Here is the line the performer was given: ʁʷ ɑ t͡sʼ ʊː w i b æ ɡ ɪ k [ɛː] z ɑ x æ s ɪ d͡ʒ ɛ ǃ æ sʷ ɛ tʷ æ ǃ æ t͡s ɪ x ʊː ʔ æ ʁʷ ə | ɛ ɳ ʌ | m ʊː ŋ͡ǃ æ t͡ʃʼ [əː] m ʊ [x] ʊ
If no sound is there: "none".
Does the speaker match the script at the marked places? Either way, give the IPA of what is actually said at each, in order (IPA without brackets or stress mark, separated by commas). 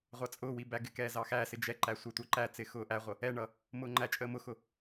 ɛː, əː, x